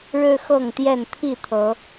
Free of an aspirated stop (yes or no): no